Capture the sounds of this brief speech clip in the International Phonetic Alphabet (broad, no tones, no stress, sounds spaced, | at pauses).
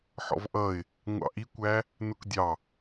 ħ ɔ̰ v ʔ ʌ ɪ̯ | ŋʷ ɑ̰ ʔ i kʷ æ | n ʊ k dʲ ɑ